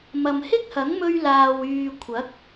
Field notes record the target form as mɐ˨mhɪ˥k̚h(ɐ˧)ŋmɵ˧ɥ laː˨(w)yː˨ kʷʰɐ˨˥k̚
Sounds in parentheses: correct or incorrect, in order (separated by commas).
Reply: incorrect, correct